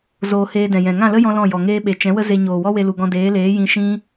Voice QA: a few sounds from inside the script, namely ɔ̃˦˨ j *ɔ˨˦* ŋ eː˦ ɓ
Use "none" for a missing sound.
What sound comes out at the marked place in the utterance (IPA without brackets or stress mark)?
ɔ˨